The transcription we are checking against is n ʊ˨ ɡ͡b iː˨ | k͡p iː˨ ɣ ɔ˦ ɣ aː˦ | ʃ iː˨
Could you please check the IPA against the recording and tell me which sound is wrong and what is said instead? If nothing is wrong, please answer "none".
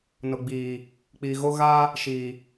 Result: ɔ˦ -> o˦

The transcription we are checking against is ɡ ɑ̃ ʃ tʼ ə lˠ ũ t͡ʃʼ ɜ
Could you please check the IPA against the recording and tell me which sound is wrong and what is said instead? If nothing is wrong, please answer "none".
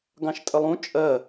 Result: none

